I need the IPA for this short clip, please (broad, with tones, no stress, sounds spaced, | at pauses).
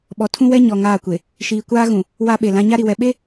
ɓ ɔ˨ tʰ ũ˦ w ɛ˦ ɲ ɔ˨ ŋ aː˦˨ kʷ e˨ | ʃ iː˨ kʷ aː˦ ɣ ũ˨ | w a˦ ɓ e˨ l ã˦ ɲ a˦ ɾ i˨ w ɛ˨ ɓ e˦